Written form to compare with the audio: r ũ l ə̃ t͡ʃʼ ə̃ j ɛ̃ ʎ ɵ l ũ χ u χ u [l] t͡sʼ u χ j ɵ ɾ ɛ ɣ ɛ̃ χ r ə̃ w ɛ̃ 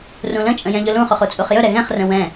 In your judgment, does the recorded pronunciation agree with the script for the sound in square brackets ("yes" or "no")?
no